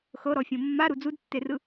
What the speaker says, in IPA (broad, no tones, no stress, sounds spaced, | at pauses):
x ɤ ɾ ɔ fʲ õ mː a ɾ u d͡z u d tː e r ɯ